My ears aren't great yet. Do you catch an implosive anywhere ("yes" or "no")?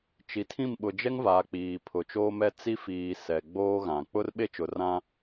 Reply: yes